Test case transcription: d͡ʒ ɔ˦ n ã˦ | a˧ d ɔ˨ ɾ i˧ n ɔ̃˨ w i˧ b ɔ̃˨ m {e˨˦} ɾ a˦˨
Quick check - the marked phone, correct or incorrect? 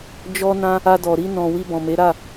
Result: correct